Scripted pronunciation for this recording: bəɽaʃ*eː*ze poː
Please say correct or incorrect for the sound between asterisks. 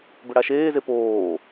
correct